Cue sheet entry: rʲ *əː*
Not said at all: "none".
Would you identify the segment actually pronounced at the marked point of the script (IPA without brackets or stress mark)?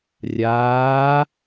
aː